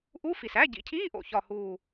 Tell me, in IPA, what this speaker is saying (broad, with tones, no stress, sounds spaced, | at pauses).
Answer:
ʔ u˧˥˧ f i˨˩ s æ˧˥˧ ɟ ḭ˨˩ cʰ iː˧˥˧ ʔ o̰˨˩ ç ɒ˦˨ h uː˦˨